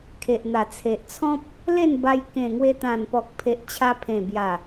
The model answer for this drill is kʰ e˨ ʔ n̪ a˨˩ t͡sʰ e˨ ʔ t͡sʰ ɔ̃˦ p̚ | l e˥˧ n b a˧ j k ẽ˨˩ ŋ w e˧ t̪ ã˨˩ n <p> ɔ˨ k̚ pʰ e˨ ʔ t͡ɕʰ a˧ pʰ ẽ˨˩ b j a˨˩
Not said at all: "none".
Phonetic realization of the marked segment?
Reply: p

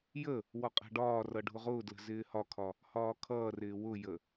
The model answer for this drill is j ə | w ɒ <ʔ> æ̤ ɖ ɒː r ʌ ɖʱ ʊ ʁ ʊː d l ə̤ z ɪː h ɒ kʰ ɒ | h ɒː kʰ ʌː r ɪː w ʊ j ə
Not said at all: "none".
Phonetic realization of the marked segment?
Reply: qʼ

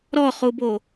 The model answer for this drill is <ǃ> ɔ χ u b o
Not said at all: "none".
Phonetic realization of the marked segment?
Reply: ɾ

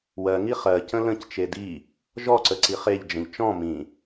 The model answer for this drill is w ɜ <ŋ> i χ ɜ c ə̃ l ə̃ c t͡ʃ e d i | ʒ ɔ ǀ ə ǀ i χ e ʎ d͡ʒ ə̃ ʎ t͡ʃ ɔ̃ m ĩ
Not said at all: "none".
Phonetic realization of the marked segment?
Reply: ŋ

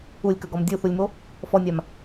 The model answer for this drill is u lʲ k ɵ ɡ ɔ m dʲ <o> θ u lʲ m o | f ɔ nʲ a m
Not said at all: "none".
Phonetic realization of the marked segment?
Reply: u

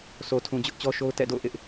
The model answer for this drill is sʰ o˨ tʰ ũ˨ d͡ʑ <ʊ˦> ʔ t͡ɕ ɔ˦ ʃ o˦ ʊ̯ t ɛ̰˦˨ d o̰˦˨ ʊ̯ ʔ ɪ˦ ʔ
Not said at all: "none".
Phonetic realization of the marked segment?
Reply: ʊ˦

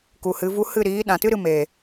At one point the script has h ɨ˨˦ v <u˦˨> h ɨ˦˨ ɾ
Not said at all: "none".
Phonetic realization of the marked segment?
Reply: u˦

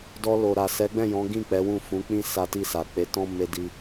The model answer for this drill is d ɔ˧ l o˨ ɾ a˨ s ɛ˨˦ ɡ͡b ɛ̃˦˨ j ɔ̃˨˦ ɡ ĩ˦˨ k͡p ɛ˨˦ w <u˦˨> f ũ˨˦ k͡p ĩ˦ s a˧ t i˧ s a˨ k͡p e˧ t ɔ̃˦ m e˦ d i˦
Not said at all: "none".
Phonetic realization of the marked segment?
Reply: ũ˦˨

